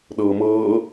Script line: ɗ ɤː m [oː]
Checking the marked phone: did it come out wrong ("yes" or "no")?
yes